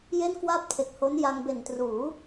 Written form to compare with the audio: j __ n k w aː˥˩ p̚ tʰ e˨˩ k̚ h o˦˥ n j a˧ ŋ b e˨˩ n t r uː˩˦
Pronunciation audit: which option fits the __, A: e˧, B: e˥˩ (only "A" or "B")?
B